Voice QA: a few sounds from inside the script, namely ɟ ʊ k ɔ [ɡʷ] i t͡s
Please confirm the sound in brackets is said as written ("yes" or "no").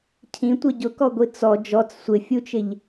yes